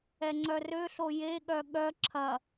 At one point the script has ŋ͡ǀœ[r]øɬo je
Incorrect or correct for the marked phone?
correct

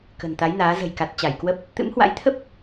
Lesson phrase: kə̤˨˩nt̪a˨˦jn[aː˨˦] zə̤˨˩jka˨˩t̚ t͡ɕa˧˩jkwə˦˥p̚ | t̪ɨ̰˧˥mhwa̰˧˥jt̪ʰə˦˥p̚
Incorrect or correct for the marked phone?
correct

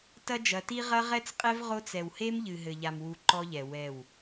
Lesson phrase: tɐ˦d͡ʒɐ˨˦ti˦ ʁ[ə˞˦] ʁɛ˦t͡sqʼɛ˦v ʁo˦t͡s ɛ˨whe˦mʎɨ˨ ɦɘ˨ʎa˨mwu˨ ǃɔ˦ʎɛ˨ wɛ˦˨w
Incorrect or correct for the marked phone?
incorrect: ɐ˦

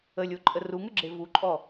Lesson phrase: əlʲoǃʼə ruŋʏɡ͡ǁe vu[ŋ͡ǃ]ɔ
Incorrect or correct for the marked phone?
incorrect: ǃʼ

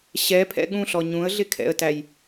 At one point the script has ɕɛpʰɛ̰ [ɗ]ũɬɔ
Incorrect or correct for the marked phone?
incorrect: ɠ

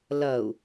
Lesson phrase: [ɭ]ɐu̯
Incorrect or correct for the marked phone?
incorrect: l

